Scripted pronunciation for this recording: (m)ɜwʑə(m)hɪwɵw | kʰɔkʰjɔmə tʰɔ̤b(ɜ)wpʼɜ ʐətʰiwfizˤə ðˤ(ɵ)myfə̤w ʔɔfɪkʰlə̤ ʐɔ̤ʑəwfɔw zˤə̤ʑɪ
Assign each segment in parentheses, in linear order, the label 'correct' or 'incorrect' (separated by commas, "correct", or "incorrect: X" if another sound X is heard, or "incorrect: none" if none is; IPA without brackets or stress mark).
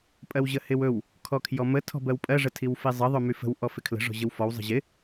incorrect: pʼ, incorrect: none, correct, correct